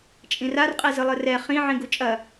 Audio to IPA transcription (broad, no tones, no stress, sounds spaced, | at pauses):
t͡ʃʼ ĩ r a r qʼ e z ɨ lˠ ɨ r ɛ χ ĩ ʕ ĩ ɡ u t͡ʃʼ ɐ